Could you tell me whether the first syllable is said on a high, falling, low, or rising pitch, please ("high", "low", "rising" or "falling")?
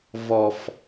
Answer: low